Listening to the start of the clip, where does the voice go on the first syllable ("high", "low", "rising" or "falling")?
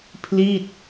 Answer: falling